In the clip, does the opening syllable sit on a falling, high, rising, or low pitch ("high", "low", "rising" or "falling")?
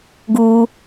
high